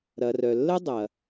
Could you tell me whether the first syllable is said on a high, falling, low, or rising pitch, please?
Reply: low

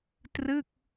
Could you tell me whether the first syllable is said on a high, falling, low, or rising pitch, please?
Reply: falling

